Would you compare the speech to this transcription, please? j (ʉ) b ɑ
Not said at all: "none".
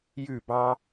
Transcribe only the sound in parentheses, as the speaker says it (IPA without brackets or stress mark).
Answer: ʉ